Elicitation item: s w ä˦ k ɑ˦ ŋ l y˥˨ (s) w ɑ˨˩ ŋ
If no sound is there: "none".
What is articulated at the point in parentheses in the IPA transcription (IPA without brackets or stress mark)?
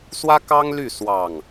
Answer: s